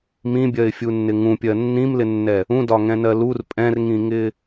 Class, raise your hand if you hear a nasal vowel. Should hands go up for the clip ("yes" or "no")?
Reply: yes